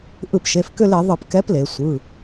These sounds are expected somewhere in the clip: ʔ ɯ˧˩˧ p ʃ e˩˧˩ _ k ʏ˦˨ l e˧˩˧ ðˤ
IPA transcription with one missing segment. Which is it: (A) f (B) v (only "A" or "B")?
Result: A